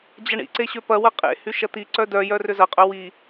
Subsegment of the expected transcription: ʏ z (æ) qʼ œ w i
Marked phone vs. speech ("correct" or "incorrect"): incorrect